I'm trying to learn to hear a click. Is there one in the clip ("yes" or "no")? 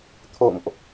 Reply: no